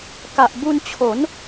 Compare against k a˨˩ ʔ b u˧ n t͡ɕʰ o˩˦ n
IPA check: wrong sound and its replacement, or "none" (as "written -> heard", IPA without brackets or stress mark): none